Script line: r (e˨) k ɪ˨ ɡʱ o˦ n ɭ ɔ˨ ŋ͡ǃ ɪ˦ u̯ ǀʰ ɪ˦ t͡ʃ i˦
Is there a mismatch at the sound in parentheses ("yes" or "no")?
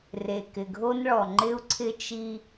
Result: no